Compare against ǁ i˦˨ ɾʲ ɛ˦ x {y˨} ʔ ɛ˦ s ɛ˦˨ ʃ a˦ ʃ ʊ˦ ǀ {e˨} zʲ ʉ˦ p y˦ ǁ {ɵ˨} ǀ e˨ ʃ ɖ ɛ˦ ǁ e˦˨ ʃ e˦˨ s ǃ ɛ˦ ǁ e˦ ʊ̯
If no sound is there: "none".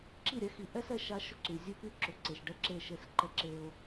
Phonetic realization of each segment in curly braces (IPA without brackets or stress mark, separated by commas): i˨, y˨, ʊ˨